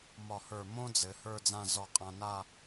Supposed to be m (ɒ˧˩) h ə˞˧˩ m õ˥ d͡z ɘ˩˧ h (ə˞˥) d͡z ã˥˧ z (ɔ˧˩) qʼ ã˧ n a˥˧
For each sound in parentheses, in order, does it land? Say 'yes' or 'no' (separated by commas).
yes, no, yes